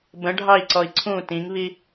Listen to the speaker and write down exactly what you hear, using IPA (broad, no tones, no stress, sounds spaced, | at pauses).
b ə̃ ɖʱ ɑ i̯ ǀ ɔ i̯ ǀʰ ũ t ĩ ŋ β i